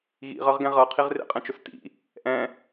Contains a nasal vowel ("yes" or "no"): yes